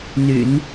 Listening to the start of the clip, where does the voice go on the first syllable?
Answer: low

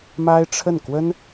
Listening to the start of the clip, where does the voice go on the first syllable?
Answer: high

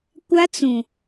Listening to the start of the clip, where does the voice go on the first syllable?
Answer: high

